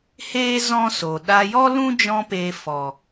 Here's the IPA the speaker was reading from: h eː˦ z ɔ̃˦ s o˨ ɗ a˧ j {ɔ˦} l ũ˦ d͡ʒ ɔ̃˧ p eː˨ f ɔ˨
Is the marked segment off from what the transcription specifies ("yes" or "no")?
no